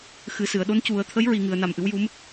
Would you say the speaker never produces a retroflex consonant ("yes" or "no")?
yes